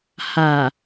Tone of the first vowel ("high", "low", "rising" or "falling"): low